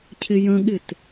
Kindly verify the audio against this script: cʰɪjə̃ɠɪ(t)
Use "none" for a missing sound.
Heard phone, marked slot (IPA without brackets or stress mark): t